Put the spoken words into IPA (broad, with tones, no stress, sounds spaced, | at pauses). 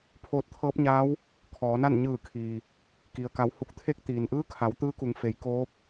pʰ oː˧ t̚ t̪ʰ ɤː˧˥ p̚ ɲ aː˧˥ w | kʰ ɔː˩˧ n a˥˨ n ɲ ɯː˧˩ kʰ iː˩ | k i˩ ə̯ k a˩˧ w h u˧˩ k̚ t̪ʰ e˧˥ k̚ t̪ iː˩ n ʔ ɯː˧˥ kʰ a˩˧ w t̪ ɯː˧˥ k u˩˧ ŋ f e˩˧ j k oː˧˥ p̚